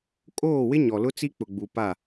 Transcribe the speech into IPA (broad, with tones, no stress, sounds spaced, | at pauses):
kʼ oː˦˨ w ɪ˦ ɲ ɔ˨ l ʊ˦ t͡s i˦ k͡p ʊ˨ ɡ͡b u˨ p a˦˨